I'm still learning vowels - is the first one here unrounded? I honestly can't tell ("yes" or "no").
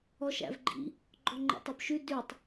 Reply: no